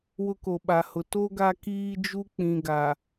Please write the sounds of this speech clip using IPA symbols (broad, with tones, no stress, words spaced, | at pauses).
wʊ˦ko˨ɓa˨hʊ˨ to˦ ɡa˦kiː˦d͡ʒu˦ k͡pĩ˨ɡa˨